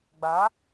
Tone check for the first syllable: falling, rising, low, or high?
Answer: rising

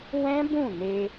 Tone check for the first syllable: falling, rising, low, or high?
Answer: high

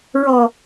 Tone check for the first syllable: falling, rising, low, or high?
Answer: low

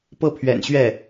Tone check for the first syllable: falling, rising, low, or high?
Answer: falling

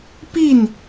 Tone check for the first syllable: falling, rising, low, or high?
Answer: falling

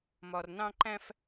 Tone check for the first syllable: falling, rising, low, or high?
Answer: low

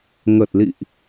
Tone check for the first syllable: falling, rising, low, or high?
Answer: low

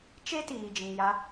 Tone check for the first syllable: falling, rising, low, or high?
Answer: high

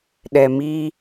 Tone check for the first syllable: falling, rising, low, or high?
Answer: low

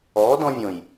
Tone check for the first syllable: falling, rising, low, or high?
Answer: rising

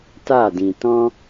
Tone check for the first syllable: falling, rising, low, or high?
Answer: falling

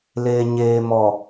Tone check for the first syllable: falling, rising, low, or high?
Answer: low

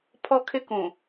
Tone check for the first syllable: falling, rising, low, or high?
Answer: high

